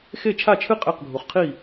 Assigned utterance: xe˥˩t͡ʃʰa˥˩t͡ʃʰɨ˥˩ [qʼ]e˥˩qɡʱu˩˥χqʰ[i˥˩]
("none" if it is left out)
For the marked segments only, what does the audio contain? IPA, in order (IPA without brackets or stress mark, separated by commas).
qʼ, i˥˩